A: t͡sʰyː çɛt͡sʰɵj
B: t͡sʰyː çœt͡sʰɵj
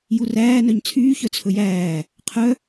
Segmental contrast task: B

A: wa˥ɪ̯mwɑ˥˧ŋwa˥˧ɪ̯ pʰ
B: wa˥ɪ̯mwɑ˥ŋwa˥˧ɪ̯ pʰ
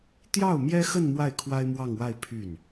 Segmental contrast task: A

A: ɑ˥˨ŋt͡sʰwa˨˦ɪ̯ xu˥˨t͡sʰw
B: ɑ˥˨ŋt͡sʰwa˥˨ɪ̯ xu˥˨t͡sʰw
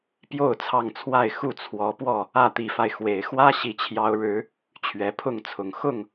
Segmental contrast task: B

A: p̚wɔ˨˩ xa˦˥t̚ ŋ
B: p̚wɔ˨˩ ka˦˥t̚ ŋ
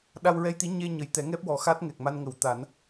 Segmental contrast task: A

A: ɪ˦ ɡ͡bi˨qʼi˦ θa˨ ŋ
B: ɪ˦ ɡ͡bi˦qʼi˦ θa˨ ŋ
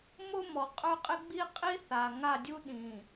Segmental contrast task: B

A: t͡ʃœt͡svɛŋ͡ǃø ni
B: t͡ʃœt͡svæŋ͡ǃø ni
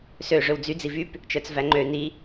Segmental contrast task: B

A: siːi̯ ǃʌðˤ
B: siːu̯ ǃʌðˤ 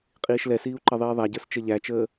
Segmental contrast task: B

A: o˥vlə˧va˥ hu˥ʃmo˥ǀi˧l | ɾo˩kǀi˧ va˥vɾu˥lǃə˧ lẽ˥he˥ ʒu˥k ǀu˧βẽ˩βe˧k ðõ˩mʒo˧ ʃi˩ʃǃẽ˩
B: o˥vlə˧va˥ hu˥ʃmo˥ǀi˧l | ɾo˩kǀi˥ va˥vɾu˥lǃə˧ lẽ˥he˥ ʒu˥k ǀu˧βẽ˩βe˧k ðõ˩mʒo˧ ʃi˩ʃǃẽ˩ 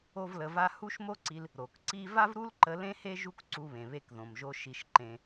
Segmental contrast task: B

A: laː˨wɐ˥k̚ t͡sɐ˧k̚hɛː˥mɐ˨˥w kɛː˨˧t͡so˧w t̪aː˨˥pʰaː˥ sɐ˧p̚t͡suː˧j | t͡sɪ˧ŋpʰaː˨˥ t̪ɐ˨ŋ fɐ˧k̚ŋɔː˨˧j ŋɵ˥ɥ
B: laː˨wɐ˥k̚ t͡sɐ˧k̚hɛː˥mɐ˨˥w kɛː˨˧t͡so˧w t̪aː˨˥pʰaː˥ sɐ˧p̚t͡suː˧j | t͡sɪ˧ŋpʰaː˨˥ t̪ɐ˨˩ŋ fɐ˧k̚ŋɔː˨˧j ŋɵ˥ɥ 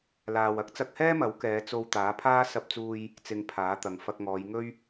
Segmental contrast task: A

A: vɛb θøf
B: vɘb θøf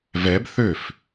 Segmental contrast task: A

